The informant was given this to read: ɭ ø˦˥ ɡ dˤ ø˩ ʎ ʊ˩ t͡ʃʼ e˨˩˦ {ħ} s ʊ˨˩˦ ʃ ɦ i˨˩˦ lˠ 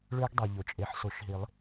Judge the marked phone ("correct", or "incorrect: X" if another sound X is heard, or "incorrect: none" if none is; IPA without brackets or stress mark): correct